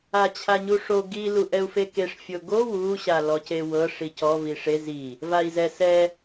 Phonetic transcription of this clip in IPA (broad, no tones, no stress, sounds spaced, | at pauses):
a t͡ɕʰ a ɲ u ʂ o ɡ i l u ʔ ɛ u̯ f e k e ʂ fʲ o ɡ o w u ɕ a l ɔ c e w ɤ ʂ i c ɔ v i ʂ e z i | v a i̯ z ɛ s ɛ